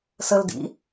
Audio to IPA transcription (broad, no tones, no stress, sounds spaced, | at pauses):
s ə l d ḭ